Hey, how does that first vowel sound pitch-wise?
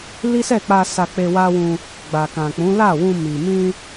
high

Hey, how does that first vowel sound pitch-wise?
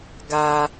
low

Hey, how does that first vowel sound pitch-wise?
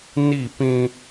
falling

